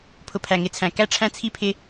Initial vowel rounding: rounded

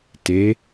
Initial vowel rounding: unrounded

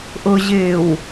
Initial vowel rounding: rounded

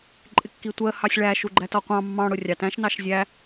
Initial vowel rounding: unrounded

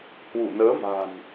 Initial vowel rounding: rounded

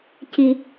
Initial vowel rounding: unrounded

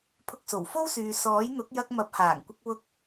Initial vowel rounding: rounded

